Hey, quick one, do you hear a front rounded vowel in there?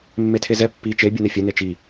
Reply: no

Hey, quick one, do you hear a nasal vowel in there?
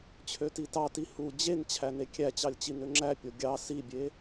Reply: no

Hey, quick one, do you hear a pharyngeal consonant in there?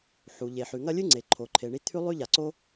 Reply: yes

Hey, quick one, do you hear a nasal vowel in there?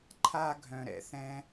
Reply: yes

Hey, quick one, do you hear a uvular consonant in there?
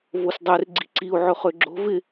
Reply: yes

